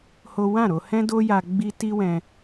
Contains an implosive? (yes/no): no